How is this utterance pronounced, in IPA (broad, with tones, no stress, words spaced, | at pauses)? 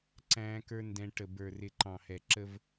ǀæ̃ː˦kə˞˦ ndɛ̃˦ ʈə˨bə˞˨rɪ˨ ǃɑ̃˨hɛ˨ ǁə˦v